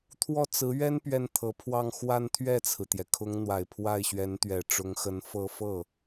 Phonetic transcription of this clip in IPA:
t̪ʰ w ɔ˥˩ t͡s ɹ̩˧˥ ɥ ɛ˥ n p ɥ ɛ˥˩ n t̪ʰ ɤ˧˥ pʰ w ɑ˥˧ ŋ x w a˥˧ n t̪ʰ ɥ ɛ˥˩ t͡sʰ ɹ̩˩ t̪ j ɛ˩ kʰ ʊ˧˥ ŋ n̪ w a˨˩ ɪ̯ pʰ w a˥˩ ɪ̯ ɕ ɥ ɛ˧˥ n t̪ ɥ ɛ˨˩ ʈ͡ʂ ʊ˧˥ ŋ x ə˧˥ n f ɤ˥˧ f ɤ˥˩

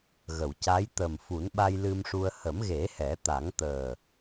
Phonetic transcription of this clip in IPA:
ɣ ə˨˩˨ w c a˧˥ j t̪ ə˨˩ m f u˨˩˦ n ɓ a˧ j l ɨ˧ m ʂ u˧ ə̯ h ə˨˩˦ m ɣ e˨˩˦ h ɛ˨˩˦ t̪ a˨˩˦ ŋ t̪ əː˨˩

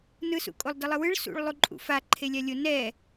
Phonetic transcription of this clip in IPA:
n ɯ s ṵ kʼ o lˠ d ʌ lˠ ɯ w ɯ ɭ s ṵ ɭ lˠ u ǃʼ ṵ f a ǃʰ e lʲ a lʲ o n ɛ

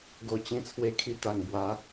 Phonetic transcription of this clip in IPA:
ɡ o˧ t͡ɕ ĩ˧ t͡sʰ w e˧ kʰ i˧ t̪ a˨˩ ŋ b w a˨˦

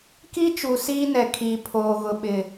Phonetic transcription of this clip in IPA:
k i˦ t͡ʃ u˨ s iː˦ n ɛ˨ kʰ iː˨ pʰ oː˨ ɣ ʊ˨ ɓ ɪ˨

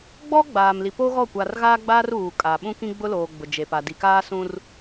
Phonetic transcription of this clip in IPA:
ɡ͡b ɔ˦ ɡ͡b aː˨ m l i˨ p o˦ ɣ ɔ˦˨ kʷ a˨ r ɣ aː˦ ɡ͡b aː˦ r uː˨ kʼ a˨ ɓ ũ˦ k ĩ˦ ɡ͡b ʊ˦ l oː˨ ɡ͡b ʊ˨ d͡ʒ e˨ p a˨ d i˨ k aː˦ s ũ˦ r

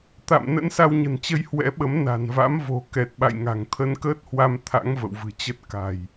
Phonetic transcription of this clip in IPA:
t̪ a̰˧˨ m n ə̰˧˥ n s a˧ w ɲ ə̤˨˩ n t͡ɕ ə˧ j h w ɛ̰˧˥ ɓ ə˨˦ m n a̤˨˩ n v a̰˧˥ m v o̤˨˩ k ɛ˨˩ t̚ ɓ a̰˧˨ j ŋ a̤˨˩ ŋ t̪ʰ ə˧ n k əː˦˥ t̚ h w a˧ m t̪ʰ a̰˧˥ ŋ v ə̰˧˨ w v ɨ̤˨˩ t͡ɕ ə˦˥ t̚ k a̤˨˩ j

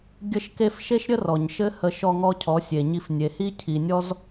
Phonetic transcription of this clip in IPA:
ɡʲ ə˦ ʃ k e˦ f ʃ e˦ ʃ ɾʲ ə˦ r ɔ˨ ɲ ʃ ɘ˦ h ə˧ ʃ ɔ˧ ŋ ɔ˧ cʰ ɔ˨˦ sʲ e˨ ɲ i˧ f nʲ e˨ h i˦ cʰ i˨ nʲ ɔ˦ z

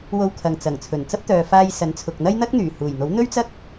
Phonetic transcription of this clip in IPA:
w o˧ w kʰ ɐ˨ ŋ t͡s ɐ˨˩ ŋ t͡sʰ ɵ˨˩ n t͡s ɐ˥ p̚ t̪ œː˨ f aː˧ j s ɐ˨˥ n t͡sʰ ʊ˨ k̚ n̪ ɐ˥ j n̪ ɐ˥ k̚ n̪ yː˨˩ h uː˨˩ j n̪ o˨˥ w n̪ ɵ˥ ɥ t͡s ɐ˥ k̚

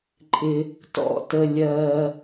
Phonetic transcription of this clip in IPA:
ǃʼ ɪ˧ | t ɔ̰˦ t ə˧ lʲ ɜː˧

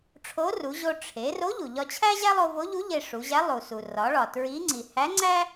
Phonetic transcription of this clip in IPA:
ʈ͡ʂʰ o˧˥ r u˩˧ ʑ o˧ ʈ͡ʂʰ e˩˧ r o˧˥ ʎ u˩ ʎ ɒ˧ t͡ɕʰ æ˥ ʑ æ˥ lˠ o˧ v o˧˥ ʎ u˧˥ ʎ e˧ ʂ u˩˧ ʑ æ˧˥ lˠ u˩ s u˩ r ɒ˩˧ ɭ ɒ˩ t ɹ i˧˥ ŋ͡ǀ i˩ h æ˧˥ ŋ͡ǀ æ˥

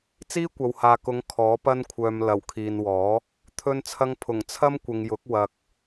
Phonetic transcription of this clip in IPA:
t͡s iː˥ kʷ ɐ˨ w h aː˨ k ʊ˨˧ ŋ kʰ ɔː˨˥ p ɐ˥ n kʷʰ œː˧ m l ɐ˨˩ w kʰ iː˨ n w ɔː˨˥ | t̪ʰ ɵ˧ n t͡sʰ ɐ˧ ŋ pʰ ʊ˨˩ ŋ t͡sʰ ɐ˥ m kʷ ɪ˨ ŋ j ʊ˨˥ k̚ w ɐ˧ k̚

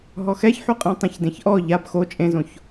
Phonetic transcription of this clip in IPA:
ɦ ɔ x ɛ ç ħ u qʼ ĩ tˤ ẽ ç d ẽ ç ʔ ɔ ʎ a b x o t͡ʃʼ ẽ z õ ç

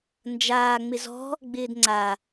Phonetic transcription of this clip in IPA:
n d͡ʒ aː ŋ͡m ɪ z ɔ̤ | ɡ͡b ɪː d ŋ͡ǀ a

